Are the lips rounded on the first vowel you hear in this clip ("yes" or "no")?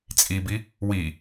no